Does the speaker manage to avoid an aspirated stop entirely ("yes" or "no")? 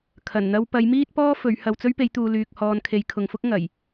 no